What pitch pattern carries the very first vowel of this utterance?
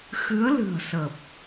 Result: rising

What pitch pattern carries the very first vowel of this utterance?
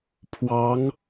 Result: rising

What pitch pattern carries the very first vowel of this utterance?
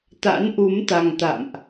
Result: rising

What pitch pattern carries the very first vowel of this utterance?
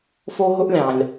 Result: high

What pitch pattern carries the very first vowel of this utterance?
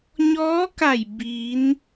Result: rising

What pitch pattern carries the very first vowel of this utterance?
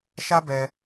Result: high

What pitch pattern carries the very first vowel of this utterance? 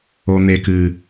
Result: low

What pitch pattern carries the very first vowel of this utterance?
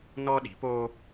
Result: high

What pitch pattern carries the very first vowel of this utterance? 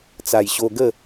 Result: low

